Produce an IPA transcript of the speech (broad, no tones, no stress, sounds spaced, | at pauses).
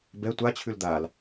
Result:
b ɛ tʷ a t͡ɕʰ ʉ l d̪ a l